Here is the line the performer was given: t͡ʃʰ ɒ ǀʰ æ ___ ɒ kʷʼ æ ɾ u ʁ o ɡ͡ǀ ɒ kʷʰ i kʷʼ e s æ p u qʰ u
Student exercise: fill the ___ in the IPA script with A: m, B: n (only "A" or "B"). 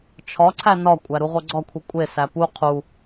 B